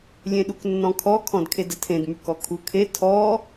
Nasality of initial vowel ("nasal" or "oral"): nasal